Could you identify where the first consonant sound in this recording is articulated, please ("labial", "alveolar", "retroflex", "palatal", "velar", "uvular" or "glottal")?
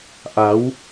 glottal